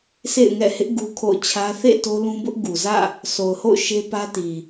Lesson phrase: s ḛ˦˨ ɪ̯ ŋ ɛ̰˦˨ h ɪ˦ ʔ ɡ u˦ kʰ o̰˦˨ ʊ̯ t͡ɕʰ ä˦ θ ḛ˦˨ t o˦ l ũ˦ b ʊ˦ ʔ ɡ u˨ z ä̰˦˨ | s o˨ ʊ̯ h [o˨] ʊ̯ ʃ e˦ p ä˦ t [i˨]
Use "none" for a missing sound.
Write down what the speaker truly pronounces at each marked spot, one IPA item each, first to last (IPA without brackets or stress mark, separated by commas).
o̰˦˨, i˨